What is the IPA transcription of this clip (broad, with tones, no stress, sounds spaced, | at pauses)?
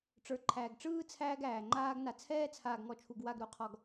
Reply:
ʈ͡ʂ ə˞˨ ǃʰ æː˨ ɡ ʈ͡ʂ ɯː˦ t͡sʰ æː˦ ɡ æː˨ ŋ͡ǃ aː˦ ɡ n a˨ t͡sʰ ɛː˦ t͡sʰ aː˨ ɡ ŋ ɔ˨ t͡ʃʰ u˨ ɡ w a˦˨ ɡ ɾ u˦ qʰ ɔ˨ ɡ